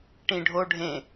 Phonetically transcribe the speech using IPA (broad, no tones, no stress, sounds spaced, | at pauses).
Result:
ʈ ĩ ɖʱ o ɖʱ ẽ